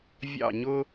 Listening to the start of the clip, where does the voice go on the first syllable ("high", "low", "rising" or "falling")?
falling